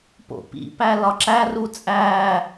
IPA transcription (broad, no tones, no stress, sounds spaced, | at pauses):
p o̰ p ḭ p æ l ɒ ǁ æ r u t͡sʼ æː